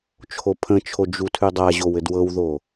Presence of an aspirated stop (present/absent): present